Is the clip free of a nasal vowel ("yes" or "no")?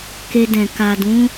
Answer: no